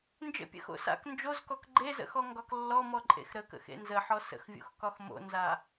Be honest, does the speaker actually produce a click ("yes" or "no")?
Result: yes